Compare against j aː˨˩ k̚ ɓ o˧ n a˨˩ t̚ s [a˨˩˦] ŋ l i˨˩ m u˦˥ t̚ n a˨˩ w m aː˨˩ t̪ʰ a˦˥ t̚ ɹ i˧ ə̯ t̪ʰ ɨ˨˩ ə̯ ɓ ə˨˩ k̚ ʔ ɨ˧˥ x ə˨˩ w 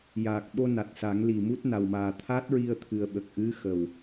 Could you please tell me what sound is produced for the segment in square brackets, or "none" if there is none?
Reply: a˨˩˦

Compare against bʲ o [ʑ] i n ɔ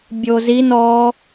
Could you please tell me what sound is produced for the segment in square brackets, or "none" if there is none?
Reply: z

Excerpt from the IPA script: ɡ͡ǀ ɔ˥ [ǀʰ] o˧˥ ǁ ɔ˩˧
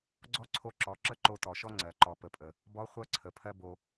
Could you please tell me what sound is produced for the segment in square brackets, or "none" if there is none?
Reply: ǀʰ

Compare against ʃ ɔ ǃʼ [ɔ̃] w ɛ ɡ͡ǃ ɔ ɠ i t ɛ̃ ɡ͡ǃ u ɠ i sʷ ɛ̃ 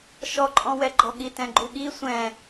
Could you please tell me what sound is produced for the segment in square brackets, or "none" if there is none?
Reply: ɔ̃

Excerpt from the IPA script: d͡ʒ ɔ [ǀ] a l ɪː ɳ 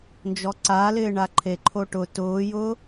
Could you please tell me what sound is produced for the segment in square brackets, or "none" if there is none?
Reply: ǀ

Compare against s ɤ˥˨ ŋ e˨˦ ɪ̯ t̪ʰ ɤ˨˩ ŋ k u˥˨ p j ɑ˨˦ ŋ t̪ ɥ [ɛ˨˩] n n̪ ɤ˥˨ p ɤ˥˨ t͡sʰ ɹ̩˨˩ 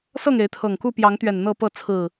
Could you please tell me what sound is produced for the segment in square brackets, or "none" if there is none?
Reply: ɛ˨˩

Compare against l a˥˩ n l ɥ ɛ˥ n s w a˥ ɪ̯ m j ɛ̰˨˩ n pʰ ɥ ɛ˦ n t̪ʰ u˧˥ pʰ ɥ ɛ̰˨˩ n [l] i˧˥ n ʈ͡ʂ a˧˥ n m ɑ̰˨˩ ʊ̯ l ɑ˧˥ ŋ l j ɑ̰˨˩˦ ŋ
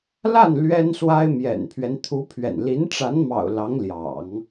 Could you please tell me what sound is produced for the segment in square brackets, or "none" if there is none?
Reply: l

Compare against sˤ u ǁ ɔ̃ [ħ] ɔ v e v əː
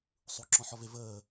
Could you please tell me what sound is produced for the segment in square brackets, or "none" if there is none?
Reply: ħ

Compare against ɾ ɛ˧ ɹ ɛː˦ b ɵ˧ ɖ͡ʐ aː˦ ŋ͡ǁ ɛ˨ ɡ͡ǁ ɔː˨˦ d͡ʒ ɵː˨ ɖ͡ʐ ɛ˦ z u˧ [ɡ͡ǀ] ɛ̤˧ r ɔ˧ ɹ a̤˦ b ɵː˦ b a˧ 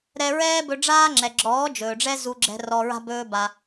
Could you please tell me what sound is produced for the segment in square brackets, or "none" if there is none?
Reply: ɡ͡ǁ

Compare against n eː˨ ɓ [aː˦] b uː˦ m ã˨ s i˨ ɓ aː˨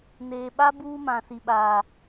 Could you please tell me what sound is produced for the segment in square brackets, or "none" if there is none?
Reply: a˦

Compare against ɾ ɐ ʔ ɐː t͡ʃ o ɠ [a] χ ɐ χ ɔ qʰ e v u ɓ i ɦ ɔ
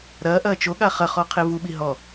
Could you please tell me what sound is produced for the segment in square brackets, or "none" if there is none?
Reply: a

